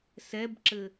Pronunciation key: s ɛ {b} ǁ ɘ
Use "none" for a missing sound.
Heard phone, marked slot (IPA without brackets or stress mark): b